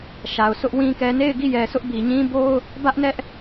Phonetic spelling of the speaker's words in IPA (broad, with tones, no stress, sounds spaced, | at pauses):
ʃ a˨ ʊ̯ sʰ ʊ˦ ʔ w ĩ˦ k ɛ˦ n e˦˨ ɪ̯ ɡ i˦˨ j ɛ˨ sʰ ʊ˦ ʔ b i˨ ɲ ĩ˦ b o˦ ʊ̯ | b ä˦ ʔ n ɛ˦ ʔ